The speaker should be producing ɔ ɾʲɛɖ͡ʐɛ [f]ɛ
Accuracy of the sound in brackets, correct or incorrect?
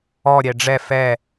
correct